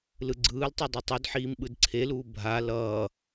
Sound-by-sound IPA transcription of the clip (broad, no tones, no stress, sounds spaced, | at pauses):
l ɯ ɡ͡ǀ ɯː l tˤ ɯ dˤ ɛ tˤ u d ħ iː m ɓ ɯ d ǀʰ e l uː bʱ a l ʌː